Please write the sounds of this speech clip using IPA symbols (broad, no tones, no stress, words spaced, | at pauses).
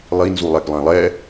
lˠinzu lˠɛɡlˠẽlˠɛ